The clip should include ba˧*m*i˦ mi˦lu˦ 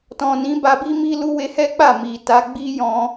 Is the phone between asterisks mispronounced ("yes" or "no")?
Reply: yes